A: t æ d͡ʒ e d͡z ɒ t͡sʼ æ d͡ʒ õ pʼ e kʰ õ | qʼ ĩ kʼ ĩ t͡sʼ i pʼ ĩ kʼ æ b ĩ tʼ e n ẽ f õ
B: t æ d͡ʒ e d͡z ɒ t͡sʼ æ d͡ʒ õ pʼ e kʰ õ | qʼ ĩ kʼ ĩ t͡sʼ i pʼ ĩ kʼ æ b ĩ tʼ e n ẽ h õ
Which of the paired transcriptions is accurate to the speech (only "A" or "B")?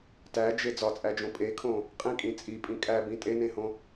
B